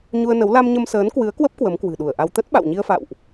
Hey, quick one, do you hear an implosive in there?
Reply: yes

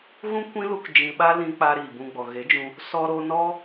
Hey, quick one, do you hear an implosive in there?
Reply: yes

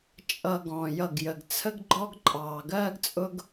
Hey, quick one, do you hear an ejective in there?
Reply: yes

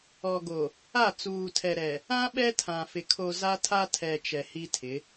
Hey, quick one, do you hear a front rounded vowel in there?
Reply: no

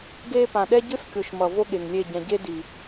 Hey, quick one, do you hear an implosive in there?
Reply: yes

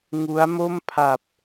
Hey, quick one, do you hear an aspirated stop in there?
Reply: yes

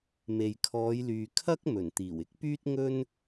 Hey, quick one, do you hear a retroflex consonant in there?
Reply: no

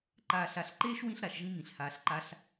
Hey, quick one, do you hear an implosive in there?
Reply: no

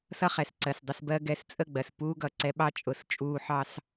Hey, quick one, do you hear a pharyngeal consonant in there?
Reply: yes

